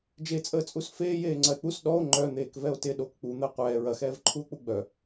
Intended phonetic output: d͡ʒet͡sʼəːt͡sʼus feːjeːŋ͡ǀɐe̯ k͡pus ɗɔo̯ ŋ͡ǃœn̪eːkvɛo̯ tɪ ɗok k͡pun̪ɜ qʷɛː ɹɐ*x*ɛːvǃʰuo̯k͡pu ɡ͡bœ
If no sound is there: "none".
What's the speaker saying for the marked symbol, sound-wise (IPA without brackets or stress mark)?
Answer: x